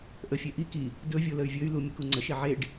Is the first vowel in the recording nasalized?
no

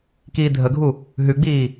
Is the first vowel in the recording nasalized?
no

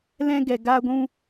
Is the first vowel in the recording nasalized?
yes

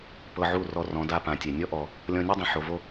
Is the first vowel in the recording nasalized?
no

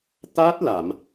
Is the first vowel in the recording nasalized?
no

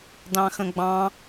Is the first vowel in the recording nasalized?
yes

